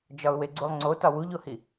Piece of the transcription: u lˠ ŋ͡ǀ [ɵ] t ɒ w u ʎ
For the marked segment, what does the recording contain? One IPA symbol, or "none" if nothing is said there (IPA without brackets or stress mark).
o